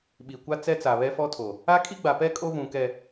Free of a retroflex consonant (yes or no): yes